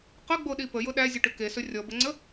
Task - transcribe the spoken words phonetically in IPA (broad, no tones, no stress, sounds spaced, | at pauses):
q ə ɡ͡b o ɗ i p ə j ʊ ɗ æ zʲ ə ʈ ʏ k e s ɵ rʲ ɔ b ə ŋ͡ǀ ə